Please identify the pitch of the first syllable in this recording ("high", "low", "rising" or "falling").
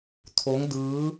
rising